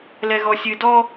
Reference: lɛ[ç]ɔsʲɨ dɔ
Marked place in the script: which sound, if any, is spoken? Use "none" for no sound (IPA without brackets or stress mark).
ɣ